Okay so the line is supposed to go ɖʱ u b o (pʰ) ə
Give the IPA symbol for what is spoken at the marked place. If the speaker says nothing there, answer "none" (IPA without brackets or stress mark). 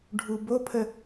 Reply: pʰ